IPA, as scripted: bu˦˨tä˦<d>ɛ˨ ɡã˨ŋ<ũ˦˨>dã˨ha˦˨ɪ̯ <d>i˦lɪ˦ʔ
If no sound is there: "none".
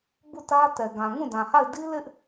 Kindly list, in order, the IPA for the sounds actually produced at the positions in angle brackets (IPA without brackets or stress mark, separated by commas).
t, ũ˦˨, d